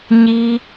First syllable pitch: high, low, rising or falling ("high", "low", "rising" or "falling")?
high